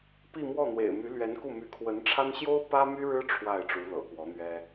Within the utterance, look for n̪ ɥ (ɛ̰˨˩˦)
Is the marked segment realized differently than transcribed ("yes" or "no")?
yes